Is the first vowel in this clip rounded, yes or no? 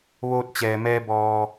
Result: yes